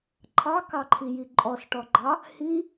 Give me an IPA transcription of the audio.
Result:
ǃʰ ɑ k ɑ ǃʰ i j i ǃʼ ɔ s ʈ ɔ ɡ͡ǃ ɑ | h i

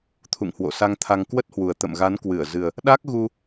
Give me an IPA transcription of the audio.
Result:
t̪ʰ ṵ˧˨ ŋ h w o̰˧˨ s a˧ ŋ t̪ʰ a˧ ŋ k w ə˦˥ t̚ h w u˨˩ ə̯ t̪ ə̰˧˨ m ɣ a˨˦ n k w ɨ˧˩ ə̯ z ɨ˨˩ ə̯ | ɗ a˦˥ k̚ ɣ u˧

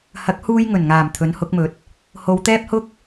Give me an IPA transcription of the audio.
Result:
h ɐ˨˥ k̚ h uː˧ j ŋ ɵ˨˩ n ŋ aː˨˩ m t̪ʰ ɵ˨˥ n h ʊ˨˥ k̚ m ɵ˨˥ t̚ | h o˨˧ w t̪ ɛː˥ p̚ h ʊ˥ k̚

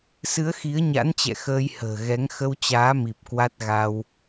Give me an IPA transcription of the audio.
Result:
s ɨ˨˦ ə̯ x i˨˦ ə̯ ɲ a̰˧˥ n t͡ɕ ɛ̰˧˨ x əː˧ j h ə̤ː˨˩ ɣ ɛ˨˦ ŋ x ə˧ w t͡ɕ aː˨˦ m i˨˩ p̚ k w a˦˥ t̚ ɣ a˧ w

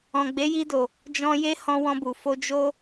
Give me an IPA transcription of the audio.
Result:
ɔ̃˨ ɡ͡b e˨˦ j i˧ d o˨ | d͡ʒ ɔ̃˧ j e˦ h ɔ̃˧ w ɔ̃˧ b u˨ f o˧ d͡ʒ o˦

